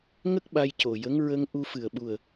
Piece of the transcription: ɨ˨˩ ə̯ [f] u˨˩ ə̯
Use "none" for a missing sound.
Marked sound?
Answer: ɓ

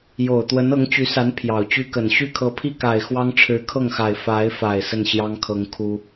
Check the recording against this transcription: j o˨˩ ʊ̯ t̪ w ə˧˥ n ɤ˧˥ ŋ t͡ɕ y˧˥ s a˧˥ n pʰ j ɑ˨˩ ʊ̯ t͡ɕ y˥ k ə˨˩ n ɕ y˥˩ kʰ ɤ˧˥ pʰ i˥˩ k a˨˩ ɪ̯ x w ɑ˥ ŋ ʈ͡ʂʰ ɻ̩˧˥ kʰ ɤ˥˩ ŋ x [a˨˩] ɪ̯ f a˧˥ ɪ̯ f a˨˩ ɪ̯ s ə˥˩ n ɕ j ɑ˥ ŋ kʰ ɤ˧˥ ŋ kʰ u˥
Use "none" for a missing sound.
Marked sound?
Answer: a˨˩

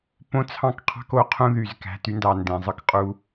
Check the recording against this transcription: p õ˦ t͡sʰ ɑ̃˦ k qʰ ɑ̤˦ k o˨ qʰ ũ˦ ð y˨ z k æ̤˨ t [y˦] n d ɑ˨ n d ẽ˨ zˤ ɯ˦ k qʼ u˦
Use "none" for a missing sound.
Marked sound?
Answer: y˦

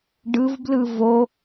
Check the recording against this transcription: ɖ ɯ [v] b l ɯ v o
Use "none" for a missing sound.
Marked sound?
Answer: v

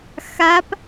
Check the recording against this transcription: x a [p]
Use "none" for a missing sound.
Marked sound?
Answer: p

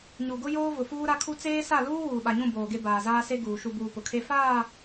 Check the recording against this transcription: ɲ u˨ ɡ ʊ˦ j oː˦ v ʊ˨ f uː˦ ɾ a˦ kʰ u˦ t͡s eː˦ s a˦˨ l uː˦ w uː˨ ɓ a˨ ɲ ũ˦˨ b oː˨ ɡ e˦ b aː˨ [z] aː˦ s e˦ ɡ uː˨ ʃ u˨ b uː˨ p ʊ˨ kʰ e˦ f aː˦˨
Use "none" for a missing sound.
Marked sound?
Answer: z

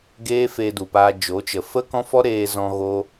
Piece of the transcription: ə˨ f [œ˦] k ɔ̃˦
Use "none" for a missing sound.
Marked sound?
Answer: ə˦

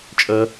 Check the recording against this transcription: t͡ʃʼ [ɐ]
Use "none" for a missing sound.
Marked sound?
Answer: ɐ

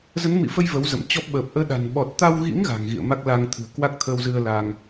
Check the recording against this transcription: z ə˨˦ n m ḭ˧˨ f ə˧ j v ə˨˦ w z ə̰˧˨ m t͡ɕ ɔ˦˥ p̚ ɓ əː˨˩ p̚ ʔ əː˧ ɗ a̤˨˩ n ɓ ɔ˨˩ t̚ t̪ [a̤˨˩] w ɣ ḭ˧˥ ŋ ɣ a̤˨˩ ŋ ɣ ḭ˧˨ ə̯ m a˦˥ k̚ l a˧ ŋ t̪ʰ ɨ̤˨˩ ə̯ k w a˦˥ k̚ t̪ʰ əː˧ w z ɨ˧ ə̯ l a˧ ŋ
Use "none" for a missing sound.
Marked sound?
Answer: a˧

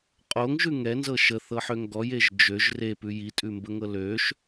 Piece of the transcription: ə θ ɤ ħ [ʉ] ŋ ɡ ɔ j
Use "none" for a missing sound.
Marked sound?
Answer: ø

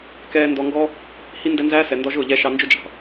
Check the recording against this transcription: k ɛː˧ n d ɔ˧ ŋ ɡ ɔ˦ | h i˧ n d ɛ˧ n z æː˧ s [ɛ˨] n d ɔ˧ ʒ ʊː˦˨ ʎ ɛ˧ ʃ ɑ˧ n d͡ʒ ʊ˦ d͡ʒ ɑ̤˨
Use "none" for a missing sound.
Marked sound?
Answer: ɛ˨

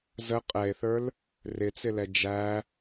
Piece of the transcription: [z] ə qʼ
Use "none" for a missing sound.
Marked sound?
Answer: z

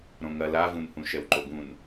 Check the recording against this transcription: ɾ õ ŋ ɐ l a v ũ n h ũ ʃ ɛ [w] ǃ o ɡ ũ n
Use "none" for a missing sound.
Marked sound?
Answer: w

